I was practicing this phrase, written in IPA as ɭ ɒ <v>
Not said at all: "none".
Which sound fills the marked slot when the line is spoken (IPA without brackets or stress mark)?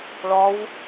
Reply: w